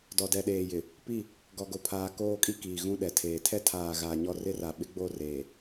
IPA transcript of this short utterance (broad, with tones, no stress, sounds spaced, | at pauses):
d ɔ˨ d ɛ˨ ɗ eː˨ j ɪ˨ | p i˦˨ | ɡ ɔ˨ ɡ o˨ pʰ aː˨ k oː˦˨ kʼ i˦ k iː˨ ɣ ũ˦ ɗ ɛ˨ tʰ eː˨ tʰ ɛ˦ tʰ aː˨ ɣ aː˨ ɲ ɔ˦˨ r ɪ˦ r a˨ ɓ ɪ˦ ɡ͡b o˦˨ r eː˨